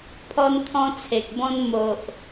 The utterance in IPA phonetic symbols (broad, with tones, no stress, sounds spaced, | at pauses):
pʰ ɔ˦ n t̪ʰ ɔ̃˦ t͡sʰ e˨ k̚ b ɔ̃˦ n m o˨ ʔ